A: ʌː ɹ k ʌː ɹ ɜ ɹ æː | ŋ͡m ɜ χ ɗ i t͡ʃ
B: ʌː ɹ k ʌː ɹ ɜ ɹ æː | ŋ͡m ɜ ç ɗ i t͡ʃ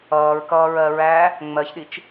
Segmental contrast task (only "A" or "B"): B